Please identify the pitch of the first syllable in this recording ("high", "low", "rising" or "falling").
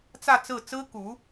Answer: falling